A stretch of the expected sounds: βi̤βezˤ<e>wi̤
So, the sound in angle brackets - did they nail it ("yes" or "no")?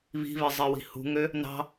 yes